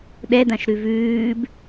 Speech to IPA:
ɗ ɛ d ã ʃ ɾ ʉ v ʉː b

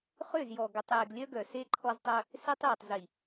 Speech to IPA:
χ ʏ˦˨ z j ɔ˨ ɡ ʏ˨ tˤ j e˨ ɡ lʲ œ˦ ɡ œ˨ s e˦ ǃʰ ɔ˦ z tˤ œ˦ | s e˦ tˤ j ʏ˨ tˤ z i˨

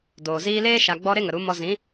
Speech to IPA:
d oː˨ z iː˧ l eː˦ ʃ a˧ ɡ͡b ɔ˦ ɾ e˦ ŋ ə˨ ɾ u˨˦ m ɔ˧ z ĩ˨˦

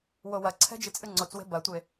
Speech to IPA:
w o w ɐ ǀʰ ɛ̤ d͡ʒ ɨ t͡sʼ ɨ ŋ͡ǀ o t͡s w e̤ b ɐ tʷ e

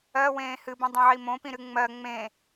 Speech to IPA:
ɜ w ẽː h ɨ b ĩ dˤ ẽ ʕ i m õ p ĩ ɾ ɨ ŋ͡m ɜ ŋ͡m ẽ

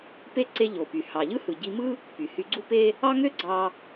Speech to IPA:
p e˧ ǀ e˧ ʎ o˩ p y˩ h ɑ˩ ʎ ɯ˥ h ɯ˩ ɟ i˧ m ɯ˥ | p y˩ h y˧ ɡ͡ǀ u˥ p e˥ | ɑ˥ ŋ ø˥ ɡ͡ǀ ɑ˧

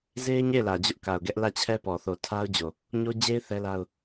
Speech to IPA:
z e˦ ɪ̯ ɲ e˦˨ ɪ̯ l ä˨ d͡ʑ ʊ˦ ʔ k a˨ ʊ̯ ɡ ɛ˦ ʔ l ä˦˨ t͡ɕʰ ɛ˦ p ɔ˨ θ o˨ tʰ a˦ ʊ̯ d͡ʑ o˨ | ɲ o˦ d͡ʑ e˦ ɪ̯ θ ɛ˦ l a˦ ʊ̯

